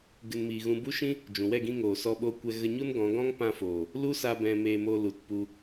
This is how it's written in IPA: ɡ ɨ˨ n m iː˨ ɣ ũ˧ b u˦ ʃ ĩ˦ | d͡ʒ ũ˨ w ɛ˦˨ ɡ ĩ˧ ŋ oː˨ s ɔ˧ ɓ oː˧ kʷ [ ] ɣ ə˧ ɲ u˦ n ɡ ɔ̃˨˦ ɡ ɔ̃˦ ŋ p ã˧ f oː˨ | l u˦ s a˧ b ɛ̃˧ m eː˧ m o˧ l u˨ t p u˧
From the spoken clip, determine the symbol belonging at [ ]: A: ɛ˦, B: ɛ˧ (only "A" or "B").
B